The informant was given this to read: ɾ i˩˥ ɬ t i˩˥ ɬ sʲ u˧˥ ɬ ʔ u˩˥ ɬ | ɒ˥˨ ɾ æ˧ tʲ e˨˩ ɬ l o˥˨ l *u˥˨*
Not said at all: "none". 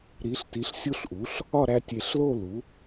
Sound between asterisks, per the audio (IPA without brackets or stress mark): u˩˥